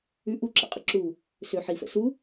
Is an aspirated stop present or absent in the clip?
absent